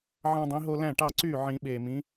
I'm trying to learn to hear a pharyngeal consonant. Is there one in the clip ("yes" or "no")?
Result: yes